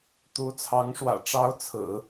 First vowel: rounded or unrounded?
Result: rounded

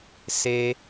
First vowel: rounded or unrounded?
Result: unrounded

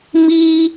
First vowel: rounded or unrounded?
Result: unrounded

